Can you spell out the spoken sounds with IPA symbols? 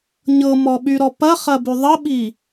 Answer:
ɲɤmɔɓyɾɔ pɐχɐby ðˤəɓi

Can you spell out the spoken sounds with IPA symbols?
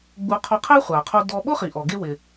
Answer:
ɡ͡bu˧ qʰɔ˧qʰe˥χʷa˩qʰo˧ dɔ˧ ɓʊ˥χi˩ʔɔ˩ɡe˧ wɪ˩

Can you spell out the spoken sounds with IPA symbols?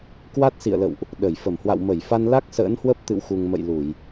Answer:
kwa˦˥t̚sḭ˧˨ə̯lə̰˧˨wʔ | ɗə˧˩j fə˧˩mhwa̰˧˨w mə˧˩jfa˧nla˦˥k̚ sə̰ː˧˥nhwə˦˥p̚t̪ɨ̰˧˨wxu˨˩ŋ mə̰˧˨jlu˧˩˨j

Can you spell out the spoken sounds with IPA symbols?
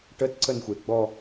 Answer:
ʈətǀənxʷe ɡ͡bɔ

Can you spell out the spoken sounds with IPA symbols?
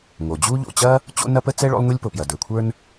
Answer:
ŋo˩d͡ʑu˥ ʎo̰˩t͡ɕɐ˥ | t͡ɕo̰˥ nɐ˥pə˥t͡sɛ˥ ɭo̰˥lˠŋʷi˥lʲpo˩pjɐ˩ də˞˩kʷʰə˞˥n

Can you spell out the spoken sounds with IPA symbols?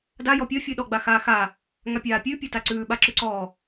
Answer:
da jɔpʲɔ fʲʉɗɔ ɡ͡baxaːxaː | ŋapʲaːpʲʉ pʲataǀʉː ɓaǁʉǀɔː

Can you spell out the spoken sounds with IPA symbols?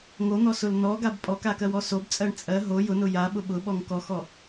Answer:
ŋon̪ɔsʊl nɔɡab pʼɔkakɜwɔ sobt͡sʼɜɳ t͡sʼɜ ɦo jʊnʊ jaɓʊ ɓʊɓɔŋ kɔxɔ

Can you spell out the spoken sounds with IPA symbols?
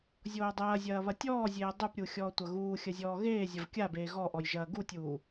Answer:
zʲoːdˤɐːzʲɐː βɐtʲɔːzʲeː dˤupɾʲu xʲɔːtʷɐɣuːxʲɐ zʲɔːɣeːzʲɐv kʲabeː ɣɔ ʔɔjʒɐːɡutʲuː

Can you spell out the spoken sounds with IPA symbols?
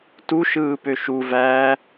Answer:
tuʃɯː pøʃuvæː

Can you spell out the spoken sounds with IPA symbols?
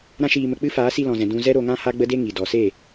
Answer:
ɾã˦ʃiː˧mə˧ k͡pɨ˦ faː˨˦si˧lɔ̃˨zɛ̃˨ dũ˧zɛ˦ɾo˧ŋã˦ ha˦ɡ͡bə˦de˦ŋi˨ dɔ˨se˦˨

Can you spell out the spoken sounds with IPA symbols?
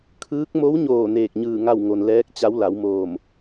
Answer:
kʰɯː˧˥k̚ mo˧˥wɲoː˧˩ neː˧˩k̚ɲɯː˧˩ ŋa˥˨w ŋo˩nlɛː˧˥k̚t͡ɕa˧˥w la˩˧wmoː˧˩m

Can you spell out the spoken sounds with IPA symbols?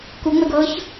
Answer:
kuŋ͡mɛɡ ɤç

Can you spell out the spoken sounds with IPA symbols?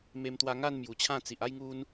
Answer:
me˧mt̪wa˧ ŋa˥˧n mju˨˩t͡ɕʰã˥˧t͡si˨ʔ a˥˧jŋu˧n

